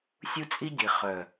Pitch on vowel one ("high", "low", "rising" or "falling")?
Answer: high